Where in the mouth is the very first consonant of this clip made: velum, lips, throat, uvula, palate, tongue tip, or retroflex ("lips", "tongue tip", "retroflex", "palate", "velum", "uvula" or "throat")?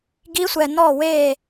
velum